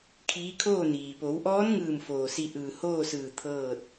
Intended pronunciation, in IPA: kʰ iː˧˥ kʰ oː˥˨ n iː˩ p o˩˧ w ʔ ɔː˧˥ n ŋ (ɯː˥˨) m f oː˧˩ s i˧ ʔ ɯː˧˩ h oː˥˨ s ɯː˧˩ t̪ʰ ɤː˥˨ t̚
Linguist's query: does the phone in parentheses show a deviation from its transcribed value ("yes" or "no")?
yes